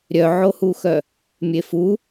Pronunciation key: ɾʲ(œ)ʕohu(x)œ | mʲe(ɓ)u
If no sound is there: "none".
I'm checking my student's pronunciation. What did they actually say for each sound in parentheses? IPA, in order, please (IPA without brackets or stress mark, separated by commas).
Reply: œ, x, f